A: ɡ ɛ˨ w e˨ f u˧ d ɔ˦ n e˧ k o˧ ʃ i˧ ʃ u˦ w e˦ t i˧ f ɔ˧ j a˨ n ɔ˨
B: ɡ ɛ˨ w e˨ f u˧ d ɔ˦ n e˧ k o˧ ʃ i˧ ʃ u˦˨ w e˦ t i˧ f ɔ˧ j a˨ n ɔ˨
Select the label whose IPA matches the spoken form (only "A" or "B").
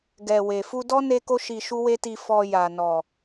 A